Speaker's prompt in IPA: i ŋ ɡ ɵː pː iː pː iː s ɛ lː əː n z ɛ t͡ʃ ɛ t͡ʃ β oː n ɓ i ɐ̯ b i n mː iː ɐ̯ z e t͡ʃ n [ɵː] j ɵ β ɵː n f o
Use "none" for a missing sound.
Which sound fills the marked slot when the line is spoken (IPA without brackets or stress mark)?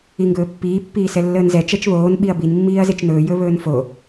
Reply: ɵː